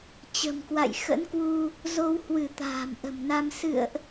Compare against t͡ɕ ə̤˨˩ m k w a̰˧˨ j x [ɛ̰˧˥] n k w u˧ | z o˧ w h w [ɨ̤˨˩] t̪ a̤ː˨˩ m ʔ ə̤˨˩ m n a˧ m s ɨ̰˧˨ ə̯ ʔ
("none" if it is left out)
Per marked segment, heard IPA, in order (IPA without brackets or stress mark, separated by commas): ə̰˧˥, ɨ˧˩